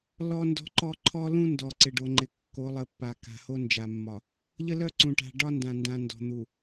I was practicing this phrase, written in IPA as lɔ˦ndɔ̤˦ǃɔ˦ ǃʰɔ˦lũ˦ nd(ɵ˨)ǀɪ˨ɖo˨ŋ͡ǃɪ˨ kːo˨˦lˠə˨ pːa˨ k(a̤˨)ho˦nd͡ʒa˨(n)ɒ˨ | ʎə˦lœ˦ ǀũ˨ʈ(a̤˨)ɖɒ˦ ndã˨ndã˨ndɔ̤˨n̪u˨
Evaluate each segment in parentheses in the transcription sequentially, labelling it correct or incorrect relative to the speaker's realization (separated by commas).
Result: incorrect, correct, incorrect, correct